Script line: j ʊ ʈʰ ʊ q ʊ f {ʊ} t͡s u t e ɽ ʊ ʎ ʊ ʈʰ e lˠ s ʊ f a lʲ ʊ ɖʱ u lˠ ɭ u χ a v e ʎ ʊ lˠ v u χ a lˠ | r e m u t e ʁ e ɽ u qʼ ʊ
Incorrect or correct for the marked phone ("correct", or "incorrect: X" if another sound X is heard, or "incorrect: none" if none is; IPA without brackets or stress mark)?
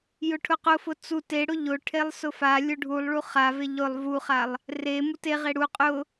correct